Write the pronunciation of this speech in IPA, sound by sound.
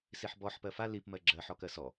s i ħ b ɔ ħ p ɜ f a l i p m ɜ ɡ͡ǁ ɜ ħ ɔ k ɜ s ɔ

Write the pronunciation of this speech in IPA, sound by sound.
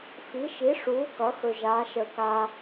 f i˩˥ ʃ i˩˥ ʂ uː˩˥ k ʌ˩˥ x ɵ˨ ʒ aː˩˥ ʃ əː˨ k a˨

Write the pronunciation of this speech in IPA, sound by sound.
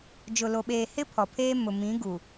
d͡ʒ ʊ˨ l o˨ ɓ eː˨ h ɪ˦ pʰ ɔ˨ pʰ eː˦ m ʊ˨ m ĩ˨˦ ɡ u˨

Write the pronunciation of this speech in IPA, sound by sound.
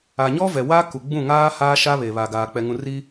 a˨ ɲ ɔ˦ v ɛ˨ w a˦ k u˨ ɡ͡b ũ˦˨ ŋ aː˦ h aː˦ ʃ a˦ β e˨ β a˨ ɡ aː˨ k͡p ɛ˨ ŋ ũ˨ r i˦

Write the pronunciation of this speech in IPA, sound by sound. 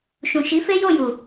ʃ ũ˨ ʃ i˨˦ f e˦ j o˦˨ j u˨

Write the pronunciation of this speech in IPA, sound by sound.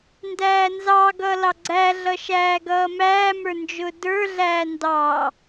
n d æː n z ɑ ɡ ʌ l ɑ ɡ͡ǀ æ ɮ ʌ ʃ æː ɡ ʌː m æː m ə˞ n d͡ʒ ʊː d ə˞ ɮ æː n d ɑ

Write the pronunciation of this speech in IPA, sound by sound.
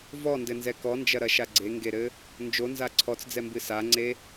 v ɔ n d ɘ n z ɛ k ɔ n d͡ʒ ɐ ɾ ɐ ʃ a ɡ͡ǀ e ŋ ɡ e ɾ ɘ | n d͡ʒ o n z a ǀʰ ɔ t͡s d͡z ɛ m b ɨ s a ŋ͡ǀ e

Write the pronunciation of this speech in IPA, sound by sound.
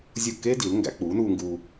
zʲ u˥˩ kː eː˥ d i˩˥ l ŋ ɡ æ̰˩˥ k͡p uː˩˥ n uː˧ ŋ ɡ uː˧

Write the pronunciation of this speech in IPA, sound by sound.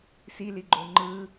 s i l i ɡ͡ǃ o ŋ͡ǃ ɯ

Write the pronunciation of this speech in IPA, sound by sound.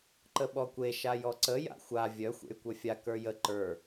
ǃ ə ɓ ɔ kʷ e ʃ a j ɔ ǀ ə j a̰ xʷ a vʲ œ xʷ ḛ y̯ kʷ œ fʲ a k ə˞ j ə ǃ ə˞

